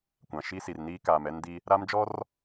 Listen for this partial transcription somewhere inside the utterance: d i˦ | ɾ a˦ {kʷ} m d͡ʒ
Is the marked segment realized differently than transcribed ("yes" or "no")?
yes